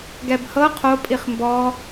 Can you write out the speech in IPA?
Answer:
ɡ ɛ b h ɤ qʰ o pʼ i χ m b ɔ

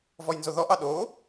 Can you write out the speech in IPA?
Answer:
v ɔ j n z o ð ɔ ʔ ɑ ɗ o

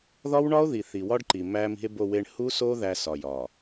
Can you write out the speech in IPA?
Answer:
ð ɒ˦ w ɳ ɒ˦ o̯ ð i˨ θ i˨ w ɒ˦ ɖ ǃ i˨ m æ˦ m i̤˦ e̯ b o˦˨ w e˦ ɳ h u˦ s o˦ ð æ˦ s ɒ˨ j ɒ˨

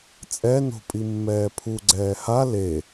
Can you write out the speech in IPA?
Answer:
t͡sʼ ɛ n o̤ pʼ i mː ɛː pʰ u ɡ͡ǀ ɛː h a l e

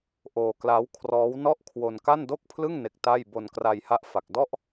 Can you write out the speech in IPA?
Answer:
ʔ oː˧ k l a˦˥ w kʰ r ɔː˦˥ w n ɔ˥˩ ʔ kʰ w o˧ n k a˥˩ n d o˥˩ k̚ pʰ l ɯ˥˩ ŋ n e˦˥ k̚ t a˥˩ j b o˧ n k r a˧ j h a˦˥ ʔ f a˨˩ k̚ d ɔ˥˩ ʔ

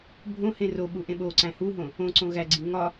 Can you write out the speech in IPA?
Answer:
bʱ õ h ẽ r o ɓ u ʔ ẽ ɓ o ǀ æ̃ h u ɦ õ | õ ǀ õ ɣ æ ɡ͡ǀ i ŋ ɒ

